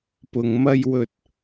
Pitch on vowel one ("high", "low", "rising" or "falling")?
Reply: low